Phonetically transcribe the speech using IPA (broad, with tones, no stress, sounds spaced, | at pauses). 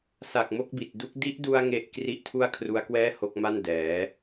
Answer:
s a˨˩ k̚ m o˦˥ k̚ b i˨˩ t̚ d u˦˥ k̚ d i˦˥ ʔ d u˧ a̯ ŋ e˥˩ ʔ k r i˥˩ ʔ tʰ u˥˩ a̯ kʰ r u˦˥ a̯ k w ɛː˥˩ h o˦˥ k̚ m a˥˩ n d ɛː˩˦